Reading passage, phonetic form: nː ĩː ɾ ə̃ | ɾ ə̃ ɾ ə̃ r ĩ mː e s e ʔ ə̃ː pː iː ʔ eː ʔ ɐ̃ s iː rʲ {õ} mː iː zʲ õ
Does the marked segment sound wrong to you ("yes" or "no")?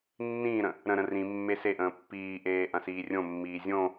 no